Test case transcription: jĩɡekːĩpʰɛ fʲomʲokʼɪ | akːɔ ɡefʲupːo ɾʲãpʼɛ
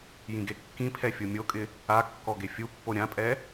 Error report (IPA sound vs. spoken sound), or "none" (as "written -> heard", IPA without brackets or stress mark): none